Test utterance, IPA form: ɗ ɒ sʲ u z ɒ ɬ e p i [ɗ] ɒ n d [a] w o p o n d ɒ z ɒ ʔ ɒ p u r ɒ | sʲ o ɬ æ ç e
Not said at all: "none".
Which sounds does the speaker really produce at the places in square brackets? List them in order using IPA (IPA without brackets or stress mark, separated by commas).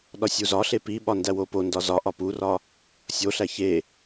ɓ, æ